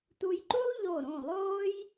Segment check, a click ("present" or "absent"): present